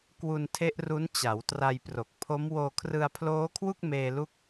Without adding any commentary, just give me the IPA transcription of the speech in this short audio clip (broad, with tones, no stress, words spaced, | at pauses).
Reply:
kwu˧ntʰe˦˥ʔru˦˥n t͡ɕa˩˦w tra˧jpro˨˩k̚pʰo˦˥m woː˧kʰrɯ˧a̯pʰloː˦˥kʰwu˥˩k̚ meː˧lu˦˥k̚